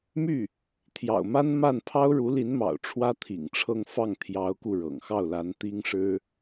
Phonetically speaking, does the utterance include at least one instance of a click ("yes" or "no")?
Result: no